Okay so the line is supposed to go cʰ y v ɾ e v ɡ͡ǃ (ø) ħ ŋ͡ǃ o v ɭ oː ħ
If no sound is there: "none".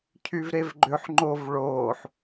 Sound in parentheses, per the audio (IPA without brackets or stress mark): ø